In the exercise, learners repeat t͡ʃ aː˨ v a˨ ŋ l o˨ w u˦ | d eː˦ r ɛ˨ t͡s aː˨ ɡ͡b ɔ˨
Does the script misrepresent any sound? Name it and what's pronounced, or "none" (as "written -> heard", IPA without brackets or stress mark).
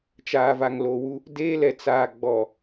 r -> l